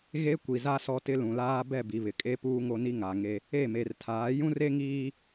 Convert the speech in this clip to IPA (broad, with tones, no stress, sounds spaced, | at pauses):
ɣ e˦ kʷ i˨ z a˦ s ɔ˦ t ɪ˦ l ũ˨ l aː˦ b ɛ˦˨ b i˨ β ɪ˨ kʼ e˦ p uː˦ ŋ o˦ n i˦ ŋ a˨ ŋ e˦ | e˦˨ m e˨ r tʰ aː˨˦ j ũ˦ r e˦ ŋ iː˦